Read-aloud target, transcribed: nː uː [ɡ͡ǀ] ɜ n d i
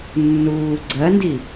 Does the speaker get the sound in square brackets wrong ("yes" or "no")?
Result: no